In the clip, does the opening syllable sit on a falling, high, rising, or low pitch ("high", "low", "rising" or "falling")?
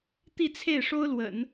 falling